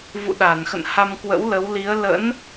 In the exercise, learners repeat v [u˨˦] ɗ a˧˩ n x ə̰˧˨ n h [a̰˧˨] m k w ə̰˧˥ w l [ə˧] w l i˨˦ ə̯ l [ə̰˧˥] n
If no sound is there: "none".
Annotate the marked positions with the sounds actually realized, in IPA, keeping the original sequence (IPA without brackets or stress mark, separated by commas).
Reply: ṵ˧˨, a˧, ə˨˦, ə̰˧˥